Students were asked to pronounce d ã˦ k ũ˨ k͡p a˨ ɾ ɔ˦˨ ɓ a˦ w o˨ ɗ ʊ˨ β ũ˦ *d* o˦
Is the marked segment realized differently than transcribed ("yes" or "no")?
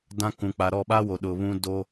no